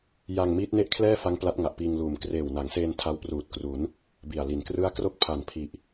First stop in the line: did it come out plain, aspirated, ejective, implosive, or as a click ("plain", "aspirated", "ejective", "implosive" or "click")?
plain